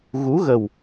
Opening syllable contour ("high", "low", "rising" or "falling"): rising